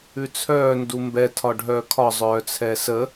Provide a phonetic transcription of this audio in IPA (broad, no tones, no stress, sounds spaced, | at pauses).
ʉ t͡sʰ œː n d u m b ɛ tʰ ɒ ɖʱ œː kʰ ɒ zˤ œː t͡sʰ ɛ s ə